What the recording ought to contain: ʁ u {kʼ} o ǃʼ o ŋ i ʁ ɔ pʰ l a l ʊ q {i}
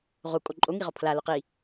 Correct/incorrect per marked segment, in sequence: correct, correct

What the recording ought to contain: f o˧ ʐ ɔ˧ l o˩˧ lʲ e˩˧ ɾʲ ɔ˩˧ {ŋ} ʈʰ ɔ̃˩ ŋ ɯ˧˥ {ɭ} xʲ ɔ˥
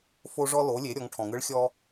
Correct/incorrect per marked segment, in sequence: correct, correct

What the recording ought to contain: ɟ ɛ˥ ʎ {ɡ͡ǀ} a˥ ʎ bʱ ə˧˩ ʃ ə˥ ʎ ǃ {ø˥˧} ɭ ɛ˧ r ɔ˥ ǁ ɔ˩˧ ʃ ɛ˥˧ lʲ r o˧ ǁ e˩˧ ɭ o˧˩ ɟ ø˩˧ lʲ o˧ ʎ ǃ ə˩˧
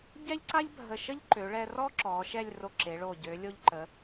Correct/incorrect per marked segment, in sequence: incorrect, incorrect

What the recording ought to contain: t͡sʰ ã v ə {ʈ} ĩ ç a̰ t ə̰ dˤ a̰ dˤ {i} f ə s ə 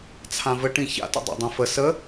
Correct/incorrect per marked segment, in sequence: correct, incorrect

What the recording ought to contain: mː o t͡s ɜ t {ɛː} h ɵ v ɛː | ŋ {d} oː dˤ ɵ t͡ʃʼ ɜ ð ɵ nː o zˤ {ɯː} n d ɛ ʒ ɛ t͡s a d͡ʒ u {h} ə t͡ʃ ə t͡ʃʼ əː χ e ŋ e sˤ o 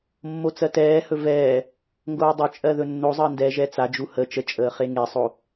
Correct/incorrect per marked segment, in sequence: correct, incorrect, incorrect, correct

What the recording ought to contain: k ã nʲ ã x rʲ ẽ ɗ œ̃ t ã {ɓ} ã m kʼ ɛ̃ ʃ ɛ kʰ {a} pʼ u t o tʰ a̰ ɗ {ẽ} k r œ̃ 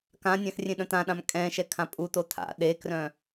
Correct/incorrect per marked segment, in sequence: incorrect, incorrect, incorrect

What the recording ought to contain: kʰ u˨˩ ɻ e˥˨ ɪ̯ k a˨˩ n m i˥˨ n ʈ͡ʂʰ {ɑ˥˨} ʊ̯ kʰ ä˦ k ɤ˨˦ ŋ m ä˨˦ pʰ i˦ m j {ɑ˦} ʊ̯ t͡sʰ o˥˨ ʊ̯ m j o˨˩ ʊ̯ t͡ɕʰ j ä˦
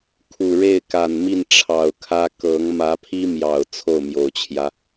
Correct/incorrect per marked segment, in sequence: incorrect, incorrect

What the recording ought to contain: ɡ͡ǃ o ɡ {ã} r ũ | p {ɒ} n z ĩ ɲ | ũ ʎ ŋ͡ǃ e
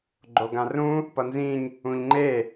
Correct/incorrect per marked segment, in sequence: correct, incorrect

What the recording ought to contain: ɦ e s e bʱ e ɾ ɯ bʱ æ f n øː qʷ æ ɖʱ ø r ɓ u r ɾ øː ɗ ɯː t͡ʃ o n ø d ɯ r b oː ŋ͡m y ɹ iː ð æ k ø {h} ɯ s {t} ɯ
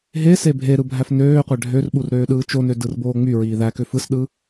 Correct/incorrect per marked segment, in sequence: incorrect, incorrect

